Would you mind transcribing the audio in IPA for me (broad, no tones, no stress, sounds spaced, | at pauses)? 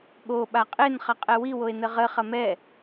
ɠ o ɓ a qʼ e n χ ɐ qʼ ɛ w i w o e̯ n ɘ ʁ ɘ χ ɐ m ɛ